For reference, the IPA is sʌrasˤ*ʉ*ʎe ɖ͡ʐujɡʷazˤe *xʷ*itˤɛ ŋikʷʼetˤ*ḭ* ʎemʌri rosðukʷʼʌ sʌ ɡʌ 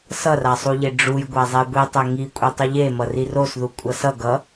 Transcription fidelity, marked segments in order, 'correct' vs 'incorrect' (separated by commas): incorrect, incorrect, incorrect